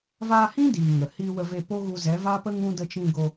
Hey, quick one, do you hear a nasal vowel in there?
yes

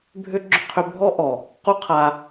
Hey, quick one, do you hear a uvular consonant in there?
yes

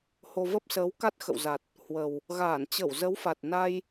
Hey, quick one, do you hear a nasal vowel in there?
no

